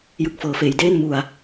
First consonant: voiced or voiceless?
voiced